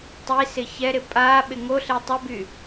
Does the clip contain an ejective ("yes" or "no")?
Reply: yes